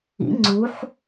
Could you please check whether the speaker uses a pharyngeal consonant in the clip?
yes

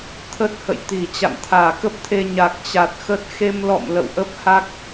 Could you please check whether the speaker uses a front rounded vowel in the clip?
no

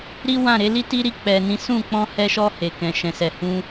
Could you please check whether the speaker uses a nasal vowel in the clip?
yes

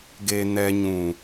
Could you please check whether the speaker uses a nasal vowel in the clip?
yes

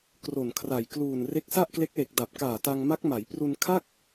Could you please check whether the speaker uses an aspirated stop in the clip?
yes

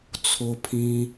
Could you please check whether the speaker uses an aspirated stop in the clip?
yes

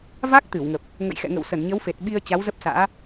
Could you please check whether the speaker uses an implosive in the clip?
yes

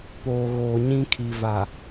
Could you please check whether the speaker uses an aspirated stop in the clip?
yes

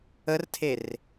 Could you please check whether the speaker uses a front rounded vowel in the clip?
no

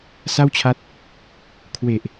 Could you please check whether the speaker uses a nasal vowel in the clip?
no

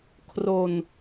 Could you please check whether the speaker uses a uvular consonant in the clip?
no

